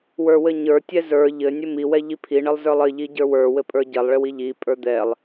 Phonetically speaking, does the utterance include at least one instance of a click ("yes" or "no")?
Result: no